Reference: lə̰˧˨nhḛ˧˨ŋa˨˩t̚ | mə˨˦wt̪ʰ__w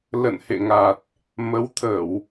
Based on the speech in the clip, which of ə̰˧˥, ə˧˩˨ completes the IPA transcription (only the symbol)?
ə˧˩˨